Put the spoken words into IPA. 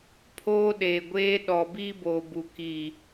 pʰ oː˦ ɗ eː˨ ɡʷ eː˦ ɗ ɔ˨ b iː˦ b oː˨ b u˨ k i˨

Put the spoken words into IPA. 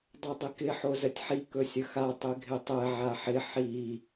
dˤ o dˤ ɪ k ɪ ħ o z ə tʲ ħ i k ɵ sʲ ə x a tˤ ɪ ɡʱ ɪ tˤ ɛ ʕ a ħ ɪ ħ i

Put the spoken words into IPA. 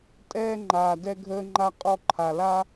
tʼ ɛː˥ ŋ͡ǃ aː˧ d ɛ˥ ɡʱ əː˥ ŋ͡ǃ a˥ qʼ ɔ˥ ǃʰ a˧ l a˥

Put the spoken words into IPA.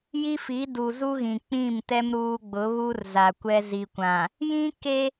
j i˦ f i˨˦ d u˨ z u˦ ɣ ĩ˨ k͡p ĩ˦˨ m t ɛ˦ m ɾ uː˦ ɡ͡b ʊ˨˦ β u˦ r z a˨ kʷ ɛ˦ z i˨ kʷ ã˨ | j ĩ˦ k e˦

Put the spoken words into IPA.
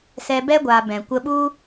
s ɛ˧ b ɛ˦ ɡʷ aː˧ b ɛ̃˨ kʷ ə˧ ɓ u˦

